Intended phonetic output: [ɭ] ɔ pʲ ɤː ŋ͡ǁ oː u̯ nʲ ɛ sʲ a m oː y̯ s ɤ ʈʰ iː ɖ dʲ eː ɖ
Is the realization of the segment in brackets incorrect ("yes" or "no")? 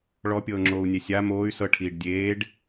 no